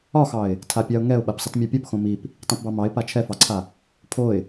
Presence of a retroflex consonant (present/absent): absent